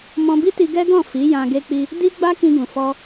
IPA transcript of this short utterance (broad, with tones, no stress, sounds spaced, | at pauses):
m ɔ̃˧ b i˦ t i˧ ɡ ɛ˦ ɡ ɔ̃˦˨ f i˨˦ j ã˧ ɡ e˧ k͡p i˧ | d i˦ ɡ͡b a˦ k ĩ˧ ɡ ũ˨ f ɔ˧